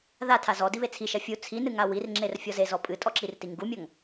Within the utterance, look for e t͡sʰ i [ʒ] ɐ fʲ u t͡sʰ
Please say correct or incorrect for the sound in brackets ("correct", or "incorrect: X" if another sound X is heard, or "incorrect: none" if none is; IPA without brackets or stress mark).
incorrect: ʃ